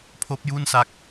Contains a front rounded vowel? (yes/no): no